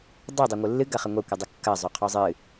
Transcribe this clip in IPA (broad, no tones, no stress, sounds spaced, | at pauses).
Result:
dˤ o dˤ o ŋʷ ɯ lː ɨ ɡ ɐ χ ɐ ŋʷ ɐ kʷ ɯ dˤ ɯ kː ɐ zˤ o qʰ ɔ zˤ ɨ